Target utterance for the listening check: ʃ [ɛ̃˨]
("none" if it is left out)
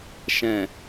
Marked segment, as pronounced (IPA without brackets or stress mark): ɛ̃˨